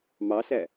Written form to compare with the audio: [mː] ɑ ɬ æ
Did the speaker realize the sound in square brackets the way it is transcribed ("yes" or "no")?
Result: no